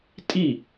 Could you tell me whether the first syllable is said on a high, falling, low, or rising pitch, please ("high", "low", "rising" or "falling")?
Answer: falling